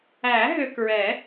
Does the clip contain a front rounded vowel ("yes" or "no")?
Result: yes